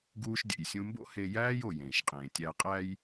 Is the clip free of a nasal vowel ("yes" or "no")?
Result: no